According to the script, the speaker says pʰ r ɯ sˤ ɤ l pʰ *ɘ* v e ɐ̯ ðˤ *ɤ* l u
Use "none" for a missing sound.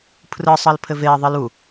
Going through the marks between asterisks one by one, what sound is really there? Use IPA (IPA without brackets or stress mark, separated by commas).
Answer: ɘ, ɯ